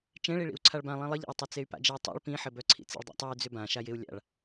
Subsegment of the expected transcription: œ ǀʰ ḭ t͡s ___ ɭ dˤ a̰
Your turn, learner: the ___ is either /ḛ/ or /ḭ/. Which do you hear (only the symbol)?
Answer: ḛ